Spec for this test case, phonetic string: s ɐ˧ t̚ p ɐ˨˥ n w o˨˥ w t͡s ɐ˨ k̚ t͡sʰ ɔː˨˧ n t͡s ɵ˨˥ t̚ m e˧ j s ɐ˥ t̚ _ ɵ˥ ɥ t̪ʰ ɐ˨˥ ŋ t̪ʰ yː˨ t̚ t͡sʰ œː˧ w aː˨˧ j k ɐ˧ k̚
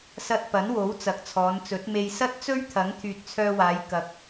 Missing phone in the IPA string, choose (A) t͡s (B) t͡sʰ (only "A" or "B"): A